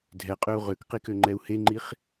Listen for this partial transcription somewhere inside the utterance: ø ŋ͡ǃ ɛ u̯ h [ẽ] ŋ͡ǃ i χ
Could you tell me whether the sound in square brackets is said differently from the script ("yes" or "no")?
yes